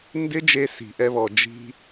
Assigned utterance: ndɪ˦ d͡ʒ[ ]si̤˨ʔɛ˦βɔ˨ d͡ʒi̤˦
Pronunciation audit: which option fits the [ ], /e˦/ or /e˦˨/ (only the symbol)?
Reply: e˦